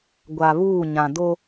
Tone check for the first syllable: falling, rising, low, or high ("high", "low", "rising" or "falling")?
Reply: low